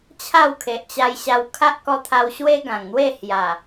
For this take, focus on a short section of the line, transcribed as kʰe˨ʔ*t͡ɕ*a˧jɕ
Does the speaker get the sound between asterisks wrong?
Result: no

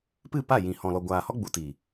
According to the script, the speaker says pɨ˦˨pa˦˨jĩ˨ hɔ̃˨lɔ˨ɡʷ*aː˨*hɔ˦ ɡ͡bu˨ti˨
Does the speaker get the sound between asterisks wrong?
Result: no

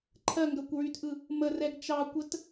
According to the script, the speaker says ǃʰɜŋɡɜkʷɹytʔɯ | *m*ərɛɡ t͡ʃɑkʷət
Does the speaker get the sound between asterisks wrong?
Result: no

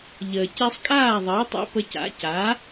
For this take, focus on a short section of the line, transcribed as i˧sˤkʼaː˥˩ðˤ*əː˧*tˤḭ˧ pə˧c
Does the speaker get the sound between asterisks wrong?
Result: yes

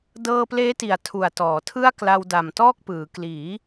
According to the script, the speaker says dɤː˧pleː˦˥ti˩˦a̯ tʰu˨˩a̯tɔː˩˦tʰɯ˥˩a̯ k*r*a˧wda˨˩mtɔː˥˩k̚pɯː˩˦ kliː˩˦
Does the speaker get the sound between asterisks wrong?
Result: yes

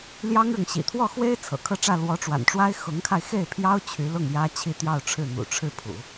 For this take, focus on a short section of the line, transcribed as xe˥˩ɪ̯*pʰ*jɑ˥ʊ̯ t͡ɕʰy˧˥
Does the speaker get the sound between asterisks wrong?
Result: no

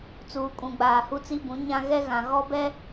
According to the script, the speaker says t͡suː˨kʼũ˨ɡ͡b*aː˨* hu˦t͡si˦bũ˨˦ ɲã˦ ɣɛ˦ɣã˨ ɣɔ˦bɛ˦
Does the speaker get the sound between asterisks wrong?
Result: no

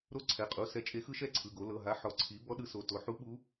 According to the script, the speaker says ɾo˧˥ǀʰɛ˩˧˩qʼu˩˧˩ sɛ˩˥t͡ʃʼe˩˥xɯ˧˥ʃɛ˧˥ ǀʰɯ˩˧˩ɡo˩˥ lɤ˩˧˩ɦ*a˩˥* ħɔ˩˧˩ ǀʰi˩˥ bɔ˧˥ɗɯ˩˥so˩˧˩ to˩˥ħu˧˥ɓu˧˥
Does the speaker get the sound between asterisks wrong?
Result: no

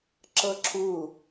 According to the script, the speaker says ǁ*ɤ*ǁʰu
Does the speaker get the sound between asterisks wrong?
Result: no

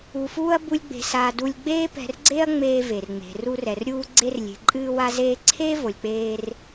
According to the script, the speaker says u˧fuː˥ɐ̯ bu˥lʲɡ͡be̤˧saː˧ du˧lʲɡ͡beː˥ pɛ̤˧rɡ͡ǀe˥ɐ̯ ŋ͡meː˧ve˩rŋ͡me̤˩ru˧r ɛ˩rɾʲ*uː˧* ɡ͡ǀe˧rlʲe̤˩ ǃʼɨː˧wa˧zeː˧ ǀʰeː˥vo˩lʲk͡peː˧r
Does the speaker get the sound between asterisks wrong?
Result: no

